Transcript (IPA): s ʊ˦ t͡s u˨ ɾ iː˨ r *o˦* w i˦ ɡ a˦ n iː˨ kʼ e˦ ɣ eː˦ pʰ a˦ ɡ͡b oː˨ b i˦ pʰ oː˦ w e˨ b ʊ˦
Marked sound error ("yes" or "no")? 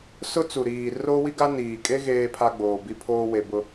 no